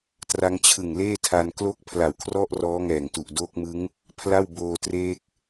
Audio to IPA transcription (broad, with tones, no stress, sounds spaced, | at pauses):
t r a˦˥ ŋ t͡ɕʰ ɯ˨˩ ŋ l eː˥˩ tʰ a˧ n k l o˥˩ k̚ pʰ l a˨˩ w kʰ r ɔ˥˩ ʔ r ɔː˦˥ ŋ ɛː˨˩ ŋ t u˨˩ ʔ d oː˦˥ k̚ m ɯ˦˥ ŋ | pʰ l a˥˩ w b oː˧ t r eː˦˥ k̚